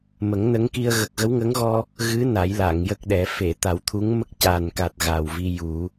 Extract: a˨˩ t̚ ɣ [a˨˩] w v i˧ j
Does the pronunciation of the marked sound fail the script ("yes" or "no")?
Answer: no